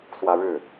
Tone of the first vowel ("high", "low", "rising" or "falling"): high